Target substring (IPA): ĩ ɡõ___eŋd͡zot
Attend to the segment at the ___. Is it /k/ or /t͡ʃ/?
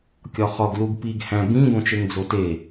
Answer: t͡ʃ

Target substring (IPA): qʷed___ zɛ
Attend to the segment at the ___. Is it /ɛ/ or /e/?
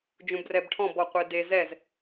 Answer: e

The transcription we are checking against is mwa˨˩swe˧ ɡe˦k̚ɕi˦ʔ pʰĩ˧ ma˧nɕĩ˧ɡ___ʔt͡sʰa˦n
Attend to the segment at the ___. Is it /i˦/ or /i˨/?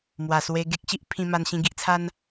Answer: i˦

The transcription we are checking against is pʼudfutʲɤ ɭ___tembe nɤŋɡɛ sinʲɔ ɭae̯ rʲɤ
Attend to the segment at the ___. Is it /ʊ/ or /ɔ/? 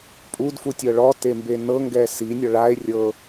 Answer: ɔ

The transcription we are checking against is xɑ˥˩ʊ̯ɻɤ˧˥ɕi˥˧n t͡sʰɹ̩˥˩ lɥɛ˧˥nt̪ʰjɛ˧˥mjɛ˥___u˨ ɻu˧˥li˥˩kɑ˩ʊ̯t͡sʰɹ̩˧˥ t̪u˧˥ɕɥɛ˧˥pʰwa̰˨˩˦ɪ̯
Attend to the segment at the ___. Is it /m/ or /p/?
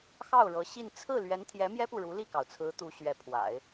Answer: p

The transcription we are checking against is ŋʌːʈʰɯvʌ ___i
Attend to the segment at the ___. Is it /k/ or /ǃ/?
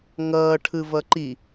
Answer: ǃ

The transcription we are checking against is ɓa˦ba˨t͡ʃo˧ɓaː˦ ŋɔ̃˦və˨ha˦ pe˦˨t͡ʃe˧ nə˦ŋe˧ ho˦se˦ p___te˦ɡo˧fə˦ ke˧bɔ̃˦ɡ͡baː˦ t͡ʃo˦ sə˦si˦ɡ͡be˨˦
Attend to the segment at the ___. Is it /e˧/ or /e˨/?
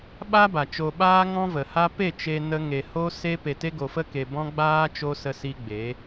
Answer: e˧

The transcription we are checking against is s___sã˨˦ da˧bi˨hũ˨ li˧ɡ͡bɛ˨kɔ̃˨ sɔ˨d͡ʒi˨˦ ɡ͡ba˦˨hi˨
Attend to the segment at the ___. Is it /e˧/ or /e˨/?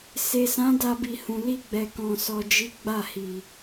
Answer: e˨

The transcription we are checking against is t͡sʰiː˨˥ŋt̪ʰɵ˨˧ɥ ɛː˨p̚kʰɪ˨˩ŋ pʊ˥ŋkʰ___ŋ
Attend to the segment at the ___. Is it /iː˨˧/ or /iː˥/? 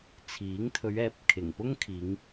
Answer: iː˨˧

